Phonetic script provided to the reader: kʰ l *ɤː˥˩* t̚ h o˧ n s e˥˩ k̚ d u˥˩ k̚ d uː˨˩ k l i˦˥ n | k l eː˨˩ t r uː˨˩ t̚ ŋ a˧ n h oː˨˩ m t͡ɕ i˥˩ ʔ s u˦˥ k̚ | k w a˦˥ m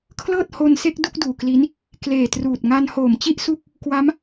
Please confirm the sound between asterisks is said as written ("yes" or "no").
yes